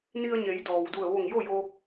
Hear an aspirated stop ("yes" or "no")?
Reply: no